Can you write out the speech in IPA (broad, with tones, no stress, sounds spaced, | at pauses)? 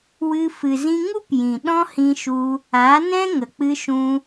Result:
w ɨ˧ f ɨ˨ z ĩ˧ ŋ u˦ p j ĩ˨ ɗ ɔ̃˦ h ĩ˧ ʃ u˧ | a˨˦ n ɛ̃˦ ŋ ə˨ k͡p ɨ˧ ʃ ũ˧